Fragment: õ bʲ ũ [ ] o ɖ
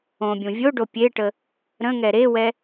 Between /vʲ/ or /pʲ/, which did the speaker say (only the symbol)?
vʲ